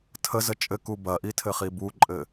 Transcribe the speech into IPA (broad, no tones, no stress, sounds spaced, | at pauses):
tʰ ə z ə t͡ʃʼ ɘ k u b ɐ ʔ i tʰ ɘ χ i b u ǃʼ ɘ